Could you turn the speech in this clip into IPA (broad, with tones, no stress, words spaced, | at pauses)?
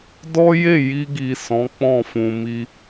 dɔ˦ je˦˨ ji˧ɡi˨ sɔ̃˨˦k͡pɔ̃˦˨fũ˨ mi˧